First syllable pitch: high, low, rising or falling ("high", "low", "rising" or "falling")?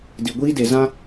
low